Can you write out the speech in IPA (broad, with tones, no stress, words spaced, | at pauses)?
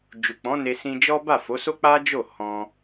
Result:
d͡ʒu˨k͡pɔ̃˨˦ ne˧sĩ˧d͡ʒɔ˦ ba˦˨fo˨˦so˦k͡pa˦ d͡ʒo˦˨hɔ̃˧